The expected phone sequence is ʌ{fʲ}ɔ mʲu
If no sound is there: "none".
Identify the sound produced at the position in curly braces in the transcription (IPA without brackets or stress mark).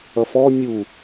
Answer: f